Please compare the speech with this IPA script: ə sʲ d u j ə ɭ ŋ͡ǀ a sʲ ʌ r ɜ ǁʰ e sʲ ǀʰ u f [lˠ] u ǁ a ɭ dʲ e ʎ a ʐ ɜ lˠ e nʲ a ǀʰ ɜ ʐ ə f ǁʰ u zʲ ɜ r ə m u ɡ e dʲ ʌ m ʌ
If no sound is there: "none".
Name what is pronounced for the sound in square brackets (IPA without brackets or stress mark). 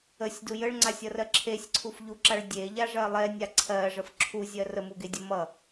ʎ